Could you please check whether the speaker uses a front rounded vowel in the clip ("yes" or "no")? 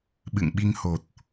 no